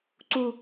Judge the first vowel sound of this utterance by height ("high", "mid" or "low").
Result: high